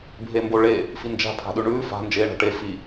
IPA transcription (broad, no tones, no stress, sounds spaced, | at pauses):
bʱ e m b o ɭ e | f i n d͡ʒ a̤ pʰ a̤ ɗ ʉ ɳ ʉː f a̤ n d͡ʒ eː ɳ a̤ ʈ e f i